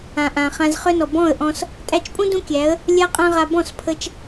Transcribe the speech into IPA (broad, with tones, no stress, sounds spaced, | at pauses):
ã˨ ʔ ã˨ χ ã˧ z χ œ˦ n ɔ˨ b ɔ̃˦˨ ə̯ ʔ ɔ̃˧ s | tʼ æ˧ t͡ʃ pʼ ũ˦ d ũ˦ kʲ æ˨˦ ə̯ | lʲ a˦ qʼ ã˦ ʁ a˧ b ɔ̃˦˨ s pʰ ə˧ t͡ʃ